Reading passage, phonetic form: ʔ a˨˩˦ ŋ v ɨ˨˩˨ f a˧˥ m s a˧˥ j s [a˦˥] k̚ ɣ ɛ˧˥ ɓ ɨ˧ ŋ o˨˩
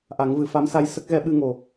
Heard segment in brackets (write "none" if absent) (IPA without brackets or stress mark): ə˦˥